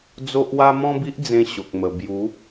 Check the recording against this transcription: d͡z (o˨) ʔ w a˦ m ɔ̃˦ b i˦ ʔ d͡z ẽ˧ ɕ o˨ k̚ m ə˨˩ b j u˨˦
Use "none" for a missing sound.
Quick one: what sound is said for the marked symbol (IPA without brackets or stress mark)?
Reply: o˦